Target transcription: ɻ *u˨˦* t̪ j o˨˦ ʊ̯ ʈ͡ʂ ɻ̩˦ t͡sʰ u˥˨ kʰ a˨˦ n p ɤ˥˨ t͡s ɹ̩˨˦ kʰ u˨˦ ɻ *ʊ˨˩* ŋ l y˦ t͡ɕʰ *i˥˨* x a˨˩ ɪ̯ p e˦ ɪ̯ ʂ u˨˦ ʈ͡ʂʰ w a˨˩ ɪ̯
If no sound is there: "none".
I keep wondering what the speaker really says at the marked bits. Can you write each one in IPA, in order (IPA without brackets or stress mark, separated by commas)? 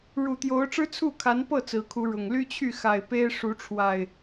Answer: u˨˩, ʊ˨˩, y˥˨